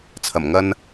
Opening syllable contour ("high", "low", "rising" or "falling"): low